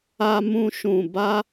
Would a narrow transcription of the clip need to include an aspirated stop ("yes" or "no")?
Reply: no